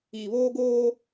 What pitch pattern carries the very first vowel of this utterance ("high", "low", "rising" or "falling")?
low